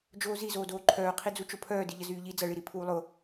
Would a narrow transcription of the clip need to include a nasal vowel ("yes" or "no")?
no